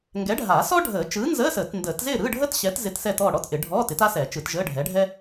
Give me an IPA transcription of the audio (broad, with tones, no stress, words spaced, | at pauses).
ŋɡɛ˨˥ɖʱa˨˩˦sɔ˥ ɖʱəː˨˩˦t͡ʃɯː˨˥nzəː˧˥˧səː˨˩˦t ndəː˨˩˦tzɪː˥˨ ɾɯː˧˥˧ɖʱəː˥tɕɛː˨˥t zɪ˧˥˧tsɛ˥˨tɔː˥˨ ɽɔ˧˥˧tʔɪ˨˩˦ɖʱɔː˧˥˧tɪ˨˥t a˥sɛ˨˩˦t͡ʃɯ˨˩˦t ʒəː˧˥˧ɖʱɛ˨˥ɖʱɛ˥